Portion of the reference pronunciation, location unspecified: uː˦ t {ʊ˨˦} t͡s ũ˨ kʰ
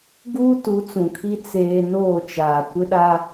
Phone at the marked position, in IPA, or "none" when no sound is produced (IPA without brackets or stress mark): u˨˦